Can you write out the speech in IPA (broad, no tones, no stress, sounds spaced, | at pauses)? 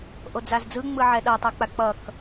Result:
ʔ o d͡z a z d͡z ɯ ŋ͡m ɯ ʕ ɛ ɗ ʌ tˤ u k͡p a k͡p ʌ k